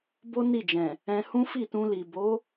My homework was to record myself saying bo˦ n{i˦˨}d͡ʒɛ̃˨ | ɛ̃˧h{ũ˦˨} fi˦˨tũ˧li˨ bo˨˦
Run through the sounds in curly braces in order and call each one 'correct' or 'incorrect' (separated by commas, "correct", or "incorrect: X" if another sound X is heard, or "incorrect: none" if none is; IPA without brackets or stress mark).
correct, incorrect: ũ˦